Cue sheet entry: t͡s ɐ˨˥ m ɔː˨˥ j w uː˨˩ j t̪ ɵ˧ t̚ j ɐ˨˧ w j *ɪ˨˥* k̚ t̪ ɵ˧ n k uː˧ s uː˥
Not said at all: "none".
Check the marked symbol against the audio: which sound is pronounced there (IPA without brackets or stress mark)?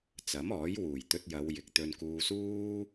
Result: ɪ˨